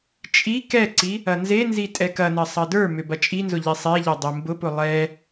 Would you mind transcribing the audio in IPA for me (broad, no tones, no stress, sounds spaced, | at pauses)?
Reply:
t͡ʃʼ i k ɛ ǀ i | ɐ n z e n z i tʼ ɛ k ɐ n ɐ sˤ ɐ d ə˞ m ʏ b ɐ t͡ʃʼ i n z ʊ ʎ i sˤ e ʎ ɐ dˤ e m b ʊ p ʊ lˠ ɛ